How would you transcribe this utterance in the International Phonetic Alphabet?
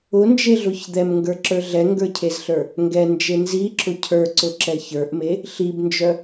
ʊ n d͡ʒ e ɮ ʊ ç d̪ ɛ m ŋ ɡ ə˞ ǁ ə˞ ɮ ɛ ŋ ɡ ə˞ cʰ e z ɬ ə˞ | ŋ ɡ ɛ n d͡ʒ e n z i ǁ ʊ cʰ ə˞ ǀ ʊ ǁ ɛ ç ə˞ ʔ m e | ɬ i b n d͡ʒ œ

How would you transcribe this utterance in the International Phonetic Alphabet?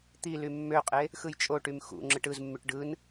t̪ i l y mː ø qʼ e | x ɯ j t͡ʃʼ o ʈ y m x ṵ ŋ͡ǁ ɯ ʈ ɯ z mː y ʈ ɖ ɯ n

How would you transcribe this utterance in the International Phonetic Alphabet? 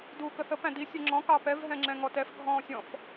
d uː k ə θ ə p æ̃ d i sʲ ɛ ŋ͡ǁ ɔ̃ k ɑ p ɛ v ɦ ɛ̃ ŋ͡ǁ ɛ̃ ŋ ɔ t ɛ f ɡʱ ɔ̃ː sʲ ɔ̃ f

